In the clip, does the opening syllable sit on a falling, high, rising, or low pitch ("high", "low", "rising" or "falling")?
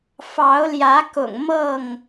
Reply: rising